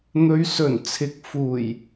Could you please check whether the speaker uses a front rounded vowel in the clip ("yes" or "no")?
no